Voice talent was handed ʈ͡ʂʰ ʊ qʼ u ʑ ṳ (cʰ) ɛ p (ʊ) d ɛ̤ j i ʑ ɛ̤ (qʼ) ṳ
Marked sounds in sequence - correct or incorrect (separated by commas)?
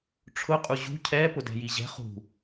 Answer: correct, correct, incorrect